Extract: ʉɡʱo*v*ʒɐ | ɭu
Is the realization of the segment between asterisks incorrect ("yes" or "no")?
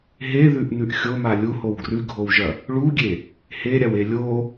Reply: yes